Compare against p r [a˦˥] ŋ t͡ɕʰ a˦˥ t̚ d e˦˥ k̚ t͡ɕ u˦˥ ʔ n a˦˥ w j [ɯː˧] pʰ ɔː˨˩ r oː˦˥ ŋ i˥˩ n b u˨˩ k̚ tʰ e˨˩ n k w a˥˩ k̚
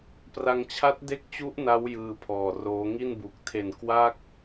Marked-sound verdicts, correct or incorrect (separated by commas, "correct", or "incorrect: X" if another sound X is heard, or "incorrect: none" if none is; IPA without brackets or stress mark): incorrect: a˧, correct